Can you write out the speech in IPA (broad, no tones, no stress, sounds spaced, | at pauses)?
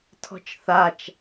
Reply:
tʰ ɔ̤ t͡ʃ θ a t͡ʃ